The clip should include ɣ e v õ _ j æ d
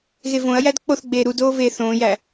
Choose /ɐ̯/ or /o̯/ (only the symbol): ɐ̯